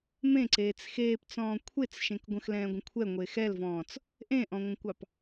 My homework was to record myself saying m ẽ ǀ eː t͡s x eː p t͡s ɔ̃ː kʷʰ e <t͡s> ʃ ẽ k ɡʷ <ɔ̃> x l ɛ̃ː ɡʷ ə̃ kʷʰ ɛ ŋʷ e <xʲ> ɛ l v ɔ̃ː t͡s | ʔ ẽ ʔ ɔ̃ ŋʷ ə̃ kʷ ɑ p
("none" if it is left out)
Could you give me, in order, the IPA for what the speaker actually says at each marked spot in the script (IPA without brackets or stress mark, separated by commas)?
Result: t͡s, ə̃, x